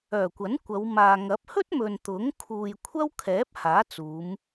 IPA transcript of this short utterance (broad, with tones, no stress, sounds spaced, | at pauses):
œː˨˩ kʷ ɐ˨˥ n kʷ ɐ˨˧ w m aː˨ ŋ ɐ˨˥ p̚ h ɵ˥ t̚ m ɵ˨ n t̪ ʊ˨˥ ŋ kʰ uː˨ j kʷʰ ɐ˥ w kʰ ɛː˨˥ p̚ h aː˨˥ t͡s uː˨˧ m